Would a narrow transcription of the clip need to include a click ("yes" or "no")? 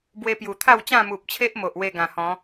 no